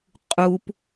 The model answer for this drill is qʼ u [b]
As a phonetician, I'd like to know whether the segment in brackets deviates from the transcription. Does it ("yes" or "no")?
yes